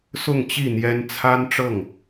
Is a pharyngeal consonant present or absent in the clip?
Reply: absent